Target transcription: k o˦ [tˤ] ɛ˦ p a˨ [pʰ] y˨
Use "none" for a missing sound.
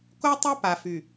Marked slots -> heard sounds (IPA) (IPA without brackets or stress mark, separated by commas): tˤ, f